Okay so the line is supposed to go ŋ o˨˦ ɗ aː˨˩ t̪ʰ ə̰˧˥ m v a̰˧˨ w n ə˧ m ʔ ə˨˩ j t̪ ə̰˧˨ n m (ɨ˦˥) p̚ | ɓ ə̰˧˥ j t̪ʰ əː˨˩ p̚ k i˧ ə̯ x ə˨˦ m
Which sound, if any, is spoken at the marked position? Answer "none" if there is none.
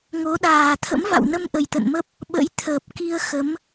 ə˦˥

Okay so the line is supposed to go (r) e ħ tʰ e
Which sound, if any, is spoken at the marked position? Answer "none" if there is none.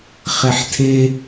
χ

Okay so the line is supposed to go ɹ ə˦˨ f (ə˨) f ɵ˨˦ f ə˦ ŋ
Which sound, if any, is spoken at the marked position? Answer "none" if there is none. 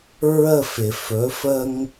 ɪ˨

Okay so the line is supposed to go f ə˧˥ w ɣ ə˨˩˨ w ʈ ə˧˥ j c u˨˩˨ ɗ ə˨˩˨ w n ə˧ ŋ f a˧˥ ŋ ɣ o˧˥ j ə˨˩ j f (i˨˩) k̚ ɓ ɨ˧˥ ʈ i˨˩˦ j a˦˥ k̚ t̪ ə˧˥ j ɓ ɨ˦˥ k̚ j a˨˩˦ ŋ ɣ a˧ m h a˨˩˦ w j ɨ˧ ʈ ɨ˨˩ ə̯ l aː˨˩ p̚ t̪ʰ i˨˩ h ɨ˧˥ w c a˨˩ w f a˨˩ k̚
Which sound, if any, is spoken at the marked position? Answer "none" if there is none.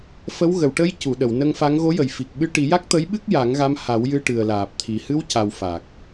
i˨˩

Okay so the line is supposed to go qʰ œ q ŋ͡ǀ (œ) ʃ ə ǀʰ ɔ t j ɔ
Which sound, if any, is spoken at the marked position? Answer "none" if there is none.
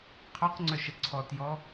œ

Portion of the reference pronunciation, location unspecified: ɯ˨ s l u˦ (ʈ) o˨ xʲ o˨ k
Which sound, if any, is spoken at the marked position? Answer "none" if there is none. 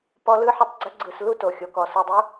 t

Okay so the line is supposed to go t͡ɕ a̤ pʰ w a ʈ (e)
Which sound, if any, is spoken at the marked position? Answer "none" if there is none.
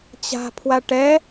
ɛ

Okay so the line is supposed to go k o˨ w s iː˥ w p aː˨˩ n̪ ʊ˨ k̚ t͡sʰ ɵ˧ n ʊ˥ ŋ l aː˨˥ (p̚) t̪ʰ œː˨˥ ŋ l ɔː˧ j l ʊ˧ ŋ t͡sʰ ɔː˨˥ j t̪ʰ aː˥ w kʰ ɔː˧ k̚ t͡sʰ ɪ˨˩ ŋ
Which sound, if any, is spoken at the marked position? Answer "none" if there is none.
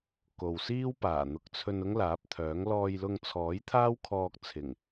p̚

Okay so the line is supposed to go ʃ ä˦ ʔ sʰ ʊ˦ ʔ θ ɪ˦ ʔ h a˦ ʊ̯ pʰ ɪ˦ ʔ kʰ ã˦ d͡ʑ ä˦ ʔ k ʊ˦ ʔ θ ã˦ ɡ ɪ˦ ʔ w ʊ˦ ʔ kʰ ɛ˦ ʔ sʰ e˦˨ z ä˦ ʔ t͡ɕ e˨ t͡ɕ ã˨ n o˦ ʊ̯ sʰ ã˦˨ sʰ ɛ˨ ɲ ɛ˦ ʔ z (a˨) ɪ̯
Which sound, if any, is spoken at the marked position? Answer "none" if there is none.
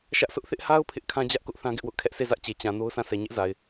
a˨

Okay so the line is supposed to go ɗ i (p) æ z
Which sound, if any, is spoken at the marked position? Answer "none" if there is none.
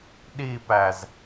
p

